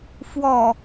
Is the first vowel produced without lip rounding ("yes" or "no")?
no